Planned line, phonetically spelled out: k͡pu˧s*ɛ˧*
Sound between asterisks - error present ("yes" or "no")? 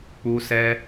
no